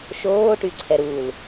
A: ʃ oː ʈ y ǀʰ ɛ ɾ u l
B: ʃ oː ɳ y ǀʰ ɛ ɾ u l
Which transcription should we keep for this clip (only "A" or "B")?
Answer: A